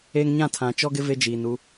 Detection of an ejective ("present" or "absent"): absent